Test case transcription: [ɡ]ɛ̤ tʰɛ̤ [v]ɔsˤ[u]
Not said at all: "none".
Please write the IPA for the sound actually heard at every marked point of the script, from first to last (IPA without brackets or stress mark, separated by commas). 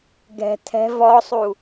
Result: ɡ, v, u